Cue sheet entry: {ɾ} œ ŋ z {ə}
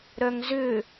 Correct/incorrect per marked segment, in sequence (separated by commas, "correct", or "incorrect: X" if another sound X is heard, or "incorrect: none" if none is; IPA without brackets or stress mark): correct, incorrect: ʏ